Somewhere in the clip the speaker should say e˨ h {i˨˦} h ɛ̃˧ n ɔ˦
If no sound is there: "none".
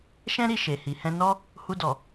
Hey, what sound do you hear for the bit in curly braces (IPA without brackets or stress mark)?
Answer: i˨